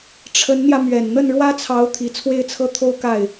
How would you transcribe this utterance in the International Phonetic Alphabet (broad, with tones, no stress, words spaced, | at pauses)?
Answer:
ʈ͡ʂʰə˧˥nn̪jä˧ mɥɛ˨˩n n̪ə˥˩nɻwä˥t͡sʰɑ˧˥ʊ̯ t̪ʰi˨˩t͡sʰwe˥˧ɪ̯t͡sʰɤ˥˧ t̪ʰo˥˧ʊ̯ka˥˩ɪ̯